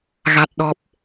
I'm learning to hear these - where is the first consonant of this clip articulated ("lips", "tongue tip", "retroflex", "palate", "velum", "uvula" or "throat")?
velum